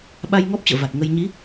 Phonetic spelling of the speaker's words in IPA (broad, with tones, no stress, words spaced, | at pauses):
ɓa˧j ŋɔ˦˥p̚t͡ɕə̰ː˧˨ va˨˩t̚ŋə˧j ɲi˨˦